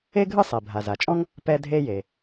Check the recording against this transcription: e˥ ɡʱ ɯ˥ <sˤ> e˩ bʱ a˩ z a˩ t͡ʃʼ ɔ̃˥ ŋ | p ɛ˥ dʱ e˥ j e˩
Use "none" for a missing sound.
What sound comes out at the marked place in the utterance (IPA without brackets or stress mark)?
sˤ